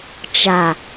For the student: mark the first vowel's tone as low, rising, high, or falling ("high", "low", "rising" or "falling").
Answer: low